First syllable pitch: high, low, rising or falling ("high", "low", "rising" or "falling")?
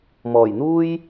low